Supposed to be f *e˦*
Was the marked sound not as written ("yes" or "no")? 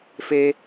no